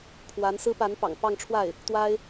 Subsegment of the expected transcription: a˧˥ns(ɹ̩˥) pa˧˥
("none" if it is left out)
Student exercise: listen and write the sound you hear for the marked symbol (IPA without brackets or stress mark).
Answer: ɹ̩˥